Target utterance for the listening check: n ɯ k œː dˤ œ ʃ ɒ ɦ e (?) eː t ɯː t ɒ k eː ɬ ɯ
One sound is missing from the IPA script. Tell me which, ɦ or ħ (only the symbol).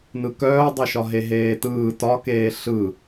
ɦ